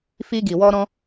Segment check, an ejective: absent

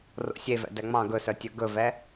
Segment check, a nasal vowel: present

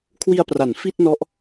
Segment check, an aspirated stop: present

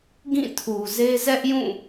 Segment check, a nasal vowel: present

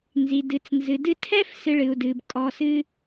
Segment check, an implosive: absent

